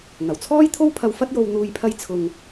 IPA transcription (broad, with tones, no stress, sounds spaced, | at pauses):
ŋ ɐ˨˩ w t͡sʰ ɔː˥ j t̪ʰ o˥ w pʰ ɐ˧ w f ɐ˥ t̚ j o˧ w n̪ uː˧ j pʰ ɐ˥ j t͡sʰ ʊ˧ ŋ